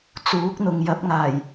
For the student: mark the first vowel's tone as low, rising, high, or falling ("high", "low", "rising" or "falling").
rising